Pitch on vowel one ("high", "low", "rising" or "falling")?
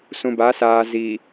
low